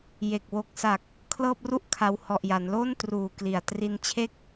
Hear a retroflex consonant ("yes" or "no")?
no